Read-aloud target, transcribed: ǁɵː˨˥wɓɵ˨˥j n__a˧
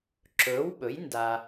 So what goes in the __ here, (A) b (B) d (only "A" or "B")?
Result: B